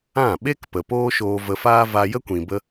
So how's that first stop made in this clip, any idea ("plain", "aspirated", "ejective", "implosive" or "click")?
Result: implosive